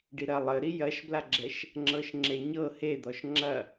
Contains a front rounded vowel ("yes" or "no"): no